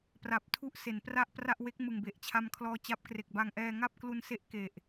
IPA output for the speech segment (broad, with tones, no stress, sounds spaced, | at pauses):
p r a˨˩ p̚ tʰ u˦˥ ʔ s e˩˦ n p r a˥˩ ʔ p r a˥˩ ʔ w e˦˥ k̚ m ɯ˨˩ ŋ b e˨˩ ʔ t͡ɕʰ a˧ m kʰ l ɔː˧ t͡ɕ a˦˥ p̚ k r e˨˩ k̚ b a˧ ŋ ʔ ɛː˧ ŋ a˥˩ p̚ k l u˧ n s e˦˥ ʔ k e˨˩ ʔ